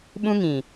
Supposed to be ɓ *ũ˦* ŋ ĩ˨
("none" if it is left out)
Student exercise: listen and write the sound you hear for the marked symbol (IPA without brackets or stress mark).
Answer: ũ˦